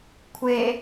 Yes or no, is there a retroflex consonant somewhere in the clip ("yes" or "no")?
no